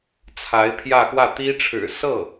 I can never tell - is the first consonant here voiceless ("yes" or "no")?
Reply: yes